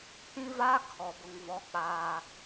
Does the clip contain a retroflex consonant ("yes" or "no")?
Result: no